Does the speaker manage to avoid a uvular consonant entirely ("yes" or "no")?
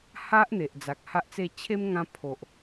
yes